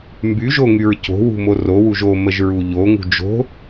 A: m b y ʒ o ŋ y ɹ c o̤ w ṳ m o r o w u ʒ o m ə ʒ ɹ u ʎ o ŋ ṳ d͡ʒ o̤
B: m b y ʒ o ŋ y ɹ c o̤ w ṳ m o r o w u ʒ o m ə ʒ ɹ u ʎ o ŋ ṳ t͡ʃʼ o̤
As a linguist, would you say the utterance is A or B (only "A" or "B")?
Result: A